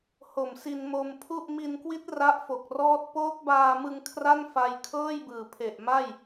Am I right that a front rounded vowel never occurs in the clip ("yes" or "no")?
yes